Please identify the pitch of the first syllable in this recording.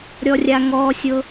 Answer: high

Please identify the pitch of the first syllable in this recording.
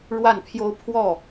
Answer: falling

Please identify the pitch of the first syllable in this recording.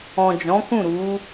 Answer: low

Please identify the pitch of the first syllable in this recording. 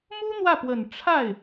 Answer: high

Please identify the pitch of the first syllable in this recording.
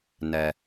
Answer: low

